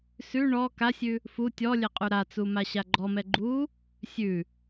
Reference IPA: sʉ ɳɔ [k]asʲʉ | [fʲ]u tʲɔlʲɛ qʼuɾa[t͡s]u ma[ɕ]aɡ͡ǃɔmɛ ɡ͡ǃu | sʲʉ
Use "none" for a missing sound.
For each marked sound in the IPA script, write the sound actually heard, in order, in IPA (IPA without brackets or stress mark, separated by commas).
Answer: k, f, t͡s, ɕ